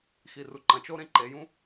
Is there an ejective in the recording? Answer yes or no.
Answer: no